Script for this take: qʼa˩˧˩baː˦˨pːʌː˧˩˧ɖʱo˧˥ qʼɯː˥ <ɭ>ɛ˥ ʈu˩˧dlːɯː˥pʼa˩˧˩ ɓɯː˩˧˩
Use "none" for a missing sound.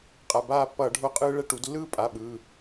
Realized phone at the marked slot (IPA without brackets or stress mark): ɭ